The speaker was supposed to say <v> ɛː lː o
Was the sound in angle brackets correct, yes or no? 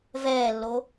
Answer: yes